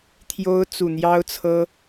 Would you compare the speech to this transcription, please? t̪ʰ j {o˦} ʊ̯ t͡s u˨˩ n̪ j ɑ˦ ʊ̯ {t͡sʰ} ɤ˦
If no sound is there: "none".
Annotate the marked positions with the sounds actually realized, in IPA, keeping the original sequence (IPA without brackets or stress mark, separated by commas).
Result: o˦, t͡sʰ